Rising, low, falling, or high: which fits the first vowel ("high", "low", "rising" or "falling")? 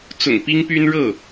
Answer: low